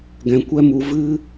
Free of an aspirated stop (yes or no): yes